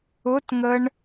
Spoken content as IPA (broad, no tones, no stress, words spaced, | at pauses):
ʊtŋəɳ